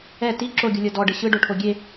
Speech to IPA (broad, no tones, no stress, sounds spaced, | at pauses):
ɛ t i ǁ o ɡʲ u lʲ ɤ d ɔ ɖ ɯ ɕ ɯ ɖ o ʈʰ o ɡʲ e